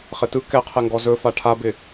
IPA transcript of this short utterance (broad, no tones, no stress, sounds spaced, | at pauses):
χ ɪ t ɯ k ɛ qʰ ɛ ŋ ɡ ɔ z ɵ f a ʈʰ a b ɪ